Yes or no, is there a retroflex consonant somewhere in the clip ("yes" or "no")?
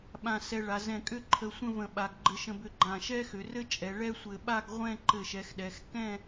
yes